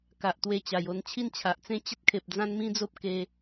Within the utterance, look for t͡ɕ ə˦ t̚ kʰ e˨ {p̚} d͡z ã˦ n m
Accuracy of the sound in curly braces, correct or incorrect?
correct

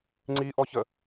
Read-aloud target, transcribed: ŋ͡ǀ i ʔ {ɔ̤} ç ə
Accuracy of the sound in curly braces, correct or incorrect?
incorrect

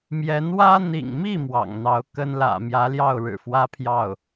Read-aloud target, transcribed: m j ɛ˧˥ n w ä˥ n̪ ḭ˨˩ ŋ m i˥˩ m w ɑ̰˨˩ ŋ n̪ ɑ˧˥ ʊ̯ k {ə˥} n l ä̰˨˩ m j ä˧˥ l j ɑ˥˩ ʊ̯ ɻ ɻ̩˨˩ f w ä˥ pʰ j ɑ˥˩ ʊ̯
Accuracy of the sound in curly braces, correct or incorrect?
correct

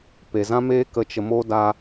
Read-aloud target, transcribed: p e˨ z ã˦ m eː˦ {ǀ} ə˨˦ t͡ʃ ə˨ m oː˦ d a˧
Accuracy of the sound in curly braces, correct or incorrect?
incorrect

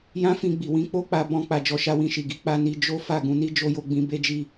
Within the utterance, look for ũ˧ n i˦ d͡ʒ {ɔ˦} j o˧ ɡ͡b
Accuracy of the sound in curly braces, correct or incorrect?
incorrect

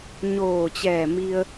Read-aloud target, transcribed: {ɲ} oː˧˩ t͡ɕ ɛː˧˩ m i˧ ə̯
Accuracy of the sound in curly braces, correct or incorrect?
correct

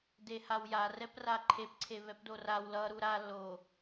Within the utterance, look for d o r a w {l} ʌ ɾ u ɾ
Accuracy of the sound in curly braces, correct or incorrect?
correct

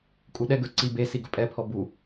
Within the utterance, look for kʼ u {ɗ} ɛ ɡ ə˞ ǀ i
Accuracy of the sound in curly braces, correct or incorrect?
correct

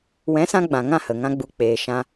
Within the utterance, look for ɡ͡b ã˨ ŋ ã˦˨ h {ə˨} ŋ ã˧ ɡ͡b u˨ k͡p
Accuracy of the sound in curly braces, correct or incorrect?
correct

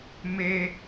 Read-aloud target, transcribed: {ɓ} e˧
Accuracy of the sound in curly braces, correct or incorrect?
incorrect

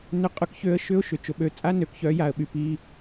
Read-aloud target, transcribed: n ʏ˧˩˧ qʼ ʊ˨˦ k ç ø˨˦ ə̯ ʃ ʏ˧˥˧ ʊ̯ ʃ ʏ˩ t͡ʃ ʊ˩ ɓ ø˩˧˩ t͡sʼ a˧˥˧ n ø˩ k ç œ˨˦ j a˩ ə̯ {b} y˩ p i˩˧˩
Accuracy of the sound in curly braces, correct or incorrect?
incorrect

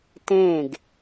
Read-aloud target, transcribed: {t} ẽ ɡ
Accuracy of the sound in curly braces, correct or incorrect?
correct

